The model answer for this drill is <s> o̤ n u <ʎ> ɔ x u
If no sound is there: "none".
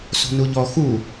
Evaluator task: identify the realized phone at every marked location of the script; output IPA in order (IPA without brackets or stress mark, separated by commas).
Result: s, ʎ